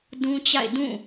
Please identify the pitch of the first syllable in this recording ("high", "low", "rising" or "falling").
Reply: high